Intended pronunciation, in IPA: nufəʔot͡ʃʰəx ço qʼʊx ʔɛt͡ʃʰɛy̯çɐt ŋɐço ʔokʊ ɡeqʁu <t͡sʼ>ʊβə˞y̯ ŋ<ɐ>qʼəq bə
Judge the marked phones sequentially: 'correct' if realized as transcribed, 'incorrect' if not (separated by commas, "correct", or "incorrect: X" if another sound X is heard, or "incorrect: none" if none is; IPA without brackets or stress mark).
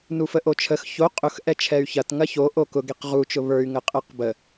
incorrect: t͡ʃ, incorrect: ə